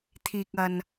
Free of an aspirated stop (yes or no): no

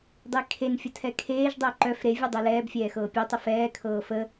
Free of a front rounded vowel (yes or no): no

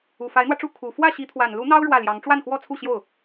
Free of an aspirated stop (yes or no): no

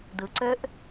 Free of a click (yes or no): no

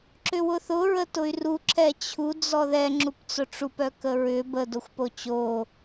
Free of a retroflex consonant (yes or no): no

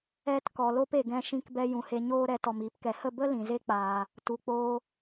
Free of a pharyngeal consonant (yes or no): yes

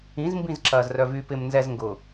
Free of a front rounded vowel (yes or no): no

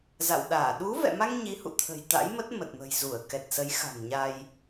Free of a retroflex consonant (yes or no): yes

